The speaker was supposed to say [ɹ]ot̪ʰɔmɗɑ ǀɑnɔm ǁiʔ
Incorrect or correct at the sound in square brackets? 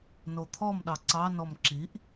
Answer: incorrect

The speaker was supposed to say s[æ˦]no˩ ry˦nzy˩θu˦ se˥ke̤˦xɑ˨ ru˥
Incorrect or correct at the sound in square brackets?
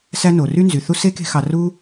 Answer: correct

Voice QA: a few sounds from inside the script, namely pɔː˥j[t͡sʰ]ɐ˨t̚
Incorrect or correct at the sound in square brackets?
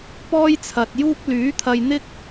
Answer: correct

